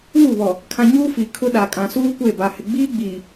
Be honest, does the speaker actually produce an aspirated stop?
yes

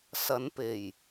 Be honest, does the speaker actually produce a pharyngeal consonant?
no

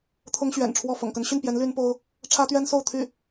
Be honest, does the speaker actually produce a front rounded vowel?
yes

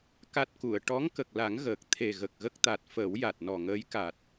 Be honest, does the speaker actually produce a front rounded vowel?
no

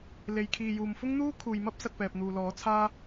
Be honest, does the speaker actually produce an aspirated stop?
yes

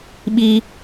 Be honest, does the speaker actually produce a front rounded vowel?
no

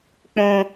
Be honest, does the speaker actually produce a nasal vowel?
yes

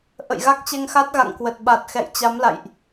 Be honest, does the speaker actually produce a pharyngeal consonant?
no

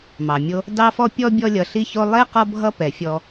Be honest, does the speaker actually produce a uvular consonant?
yes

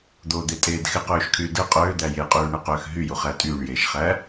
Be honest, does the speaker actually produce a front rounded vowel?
yes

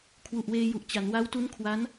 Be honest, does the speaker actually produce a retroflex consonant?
no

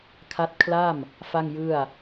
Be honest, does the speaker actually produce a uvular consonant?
no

